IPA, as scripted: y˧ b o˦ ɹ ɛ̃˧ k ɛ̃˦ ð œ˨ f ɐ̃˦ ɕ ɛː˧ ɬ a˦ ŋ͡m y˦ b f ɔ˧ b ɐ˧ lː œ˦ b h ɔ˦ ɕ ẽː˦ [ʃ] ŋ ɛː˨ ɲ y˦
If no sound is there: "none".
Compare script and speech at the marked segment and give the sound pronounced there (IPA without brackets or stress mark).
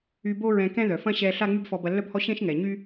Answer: ʃ